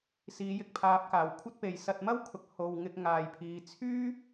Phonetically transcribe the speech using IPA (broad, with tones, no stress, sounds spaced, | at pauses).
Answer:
s iː˨˧ j ɪ˨ k̚ pʰ aː˨˥ p̚ k aː˨˩ w kʷʰ ɐ˥ t̚ p e˨ j s ɐ˧ t̚ m ɐ˥ w kʰ ʊ˨ k̚ h o˨ w ŋ ɪ˧ k̚ ŋ aː˨ j pʰ iː˨˧ t͡sʰ yː˥